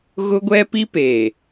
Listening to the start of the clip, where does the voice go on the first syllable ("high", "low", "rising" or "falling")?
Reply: high